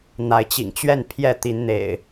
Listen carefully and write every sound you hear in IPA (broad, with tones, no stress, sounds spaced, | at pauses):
n̪ a˨˦ ɪ̯ t͡ɕ ḭ˨˩ ŋ t͡ɕ ɥ ɛ˥˨ n pʰ j ɛ˥˨ t̪ i˨˦ n n̪ ḛ˨˩ ɪ̯